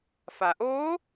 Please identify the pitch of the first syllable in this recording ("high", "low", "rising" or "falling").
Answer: low